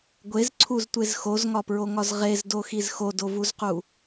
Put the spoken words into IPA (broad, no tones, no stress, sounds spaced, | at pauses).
ɡʷ e z ǀʰ u z tʷ e z x o z ŋ ɒ p ɹ o ŋ ɒ z ʁ e z d o x i z x o d o v u z q u